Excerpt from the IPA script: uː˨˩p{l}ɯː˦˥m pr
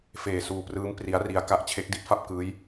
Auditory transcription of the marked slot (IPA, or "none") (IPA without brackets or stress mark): r